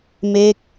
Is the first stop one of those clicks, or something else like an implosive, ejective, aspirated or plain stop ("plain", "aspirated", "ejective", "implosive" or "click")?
plain